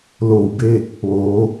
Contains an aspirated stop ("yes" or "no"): no